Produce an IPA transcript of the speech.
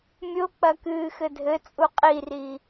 mʲok͡pɐkɨː xɘdʱɘ t͡sʼuqʼiri

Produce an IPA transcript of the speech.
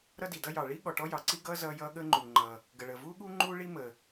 ɾʌ˥di˩dʌ˥jɑ˩ ɭi˥ ɠɔ˩ʈɔ˥jɑ˩ǀi˥ ɡʌː˥ zʌː˥jʌː˥ ɠəː˥ŋ͡ǃuː˩ŋ͡ǃʌː˩ | ɡə˩ɭəː˩vuː˥ɠuː˥ ŋ͡ǃuː˥ ɭi˥ məː˩

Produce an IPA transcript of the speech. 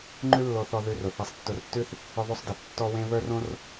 ŋ͡ǃʉ˥lːo˧θɔ˧ ðʉ˧rʊ˩ θe˧sˤtːʊ˧rtːʉ˥θ | ʊ˧ðˤʉ˧sˤde˩θ tːɔ˥wẽ˥ βə˞˥rõ˥r

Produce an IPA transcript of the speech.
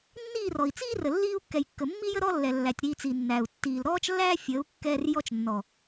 nːiː˦˨rɔ˨i̯t͡siː˦rə˨ lːiː˦u̯ kːɛ˨jkːə˨mːi˦jə˦ ɾɔ˦ lːɛ˨lːæ˨tʲ ɾiː˧t͡si˨nːæ˨u̯ tːiː˨l ɾɔː˦t͡ʃlːæː˦ fʲəː˨˦u̯ kːɛː˦r jɔ˧t͡ʃnːɔ˨

